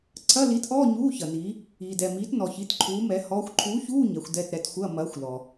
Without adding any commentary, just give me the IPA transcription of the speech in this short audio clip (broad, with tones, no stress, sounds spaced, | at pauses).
ǀʰ ɐ˧˥˧ l i˨˥ t ʔ ɔː˧˥˧ ɲ uː˧˥˧ ç ɐ˨ n iː˨˥ | iː˨ d ɛ˨ m iː˨˥ t n ɔ˨ ç i˨˥ t ǃʰ uː˨˥ m ɛ˨˥ h ɔː˨˥ xʷ ǃʰ uː˨˥ ç uː˧˥˧ ɲ ɛ˨˥ xʷ d ɛ˧˥˧ t ɾ ɛ˨˥ t xʷ ɐː˧˥˧ m ɐː˨˥ xʷ l ɔ˨